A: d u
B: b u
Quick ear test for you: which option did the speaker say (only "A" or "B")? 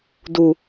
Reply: A